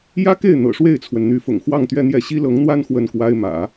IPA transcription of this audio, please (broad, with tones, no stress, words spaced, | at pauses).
jä˥ke˥˩ɪ̯ n̪ɤ̰˨˩ʂwe˥˩ɪ̯t͡sʰwə˩n n̪y˧˥fʊ̰˨˩ŋxwɑ˥˧ŋ t̪ɥɛ˥˧n̪jɛ˥˩ ɕi˥lɤ˧˥ŋn̪wa˥n xwə˥˩nkwa˥ɪ̯mä̰˨˩˦